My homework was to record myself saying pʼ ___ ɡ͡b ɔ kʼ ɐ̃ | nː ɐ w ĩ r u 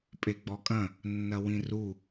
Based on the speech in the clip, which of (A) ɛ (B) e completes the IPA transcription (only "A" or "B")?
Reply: B